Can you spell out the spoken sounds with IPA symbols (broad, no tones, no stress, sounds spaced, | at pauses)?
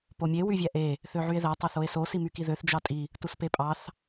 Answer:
p o mʲ e w y vʲ æ ʔ e | θ ø ʕ y e̯ ð æ tˤ ɑ θ o e̯ s o s i m y k i ð ø θ d͡ʒ ɑ tʼ i | t u s p e pʼ ɑ θ